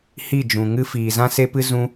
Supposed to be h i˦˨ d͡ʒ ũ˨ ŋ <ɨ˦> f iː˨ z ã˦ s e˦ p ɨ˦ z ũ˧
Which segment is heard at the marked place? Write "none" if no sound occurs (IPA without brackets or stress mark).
ɨ˦